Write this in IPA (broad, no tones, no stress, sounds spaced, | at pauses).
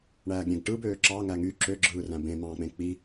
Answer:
ɳ æː ɡ ɾʲ ẽ ɡ ʈ ɯ b øː ǁ ɑ ŋ æ ŋ y ǁ ø ɡ͡ǁ ɯː r æ̃ b ẽ m ɑ̃ː k͡p ẽ k͡p i